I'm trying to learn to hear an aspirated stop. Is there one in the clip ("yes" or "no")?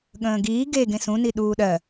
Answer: no